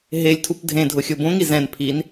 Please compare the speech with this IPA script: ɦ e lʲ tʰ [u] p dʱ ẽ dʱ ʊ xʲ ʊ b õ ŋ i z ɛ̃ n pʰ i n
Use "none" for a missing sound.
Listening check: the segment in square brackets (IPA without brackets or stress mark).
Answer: u